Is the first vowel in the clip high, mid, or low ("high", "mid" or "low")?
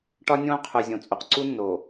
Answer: low